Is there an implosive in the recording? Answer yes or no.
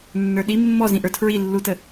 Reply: yes